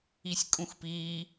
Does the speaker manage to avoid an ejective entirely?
no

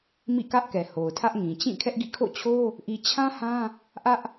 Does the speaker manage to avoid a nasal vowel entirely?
no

